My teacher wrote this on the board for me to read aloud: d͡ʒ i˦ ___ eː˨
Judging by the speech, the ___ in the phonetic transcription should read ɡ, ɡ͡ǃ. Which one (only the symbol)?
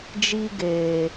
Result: ɡ